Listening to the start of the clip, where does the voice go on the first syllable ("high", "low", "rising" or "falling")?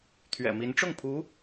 low